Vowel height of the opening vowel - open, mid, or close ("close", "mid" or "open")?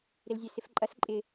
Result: close